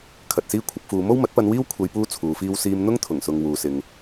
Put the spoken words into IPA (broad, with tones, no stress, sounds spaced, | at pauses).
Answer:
kʰ ɐ˨ t̚ s iː˥ kʷʰ ɐ˨˥ p̚ f uː˧ m o˥ w m ɐ˨˥ t̚ p ɐ˧ n w iː˥ w kʷʰ ɐ˧ j p uː˥ t͡sʰ uː˨˧ f iː˥ w s iː˧ m n̪ ʊ˥ ŋ t̪ʰ ʊ˨˩ ŋ s ʊ˨ ŋ w uː˧ s ɪ˧ ŋ